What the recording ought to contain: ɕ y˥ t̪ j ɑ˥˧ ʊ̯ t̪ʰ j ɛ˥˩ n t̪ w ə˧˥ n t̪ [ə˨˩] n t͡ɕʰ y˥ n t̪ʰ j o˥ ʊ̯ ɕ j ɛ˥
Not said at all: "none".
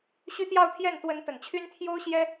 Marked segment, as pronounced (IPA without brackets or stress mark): ə˨˩